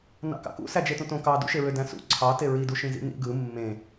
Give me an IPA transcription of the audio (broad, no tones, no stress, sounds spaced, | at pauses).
n ɑ̰ k ɑ̰ k ṵ s æ d͡ʒ e t ũ t õ k ɑ d ṵ ʃ e ɹ ø d æ̃ s ṵ ǀʰ ɑ t e ɹ i d u ʃ ĩ z ḭ n ḭ ɡ ɯ mː ẽ